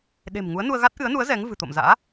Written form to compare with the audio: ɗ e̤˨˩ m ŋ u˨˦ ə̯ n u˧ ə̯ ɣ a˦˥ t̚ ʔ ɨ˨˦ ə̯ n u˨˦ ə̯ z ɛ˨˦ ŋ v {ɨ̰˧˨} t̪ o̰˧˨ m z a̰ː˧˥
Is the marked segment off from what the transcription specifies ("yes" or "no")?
yes